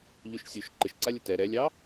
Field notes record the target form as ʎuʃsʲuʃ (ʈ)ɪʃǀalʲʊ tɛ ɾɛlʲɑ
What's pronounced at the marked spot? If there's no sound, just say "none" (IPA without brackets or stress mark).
ǃ